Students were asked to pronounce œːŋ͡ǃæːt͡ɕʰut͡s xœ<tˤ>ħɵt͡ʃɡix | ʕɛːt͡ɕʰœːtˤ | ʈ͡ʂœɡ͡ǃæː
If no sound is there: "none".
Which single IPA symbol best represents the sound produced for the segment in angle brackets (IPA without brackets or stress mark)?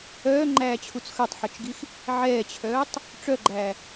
tˤ